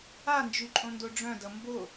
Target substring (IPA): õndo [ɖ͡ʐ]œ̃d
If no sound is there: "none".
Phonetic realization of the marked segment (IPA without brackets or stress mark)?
ɖ͡ʐ